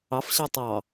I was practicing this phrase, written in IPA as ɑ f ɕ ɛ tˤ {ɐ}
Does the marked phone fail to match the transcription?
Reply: yes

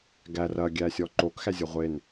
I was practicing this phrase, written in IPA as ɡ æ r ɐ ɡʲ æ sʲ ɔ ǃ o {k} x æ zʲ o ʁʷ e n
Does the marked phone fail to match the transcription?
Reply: no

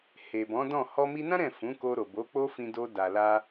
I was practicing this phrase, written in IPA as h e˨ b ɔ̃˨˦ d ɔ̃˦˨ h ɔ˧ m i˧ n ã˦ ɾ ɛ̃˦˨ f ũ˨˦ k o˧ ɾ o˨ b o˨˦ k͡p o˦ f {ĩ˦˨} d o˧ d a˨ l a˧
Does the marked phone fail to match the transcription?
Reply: yes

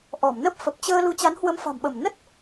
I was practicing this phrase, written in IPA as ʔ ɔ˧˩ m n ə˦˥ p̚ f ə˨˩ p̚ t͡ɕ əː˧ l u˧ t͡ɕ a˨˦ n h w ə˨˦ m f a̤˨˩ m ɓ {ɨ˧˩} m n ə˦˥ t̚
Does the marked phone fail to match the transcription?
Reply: yes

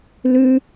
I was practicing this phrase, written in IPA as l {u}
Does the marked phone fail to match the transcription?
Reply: yes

